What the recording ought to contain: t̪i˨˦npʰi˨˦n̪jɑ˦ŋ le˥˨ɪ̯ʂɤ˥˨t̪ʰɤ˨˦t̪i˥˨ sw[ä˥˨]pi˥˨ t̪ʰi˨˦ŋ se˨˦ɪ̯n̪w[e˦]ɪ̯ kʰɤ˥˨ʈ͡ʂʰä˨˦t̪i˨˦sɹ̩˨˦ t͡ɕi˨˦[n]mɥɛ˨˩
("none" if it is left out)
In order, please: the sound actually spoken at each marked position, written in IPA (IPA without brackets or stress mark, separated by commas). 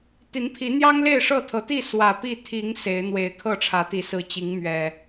ä˨˩, e˨˩, ŋ